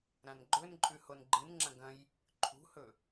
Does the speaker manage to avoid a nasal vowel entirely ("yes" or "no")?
no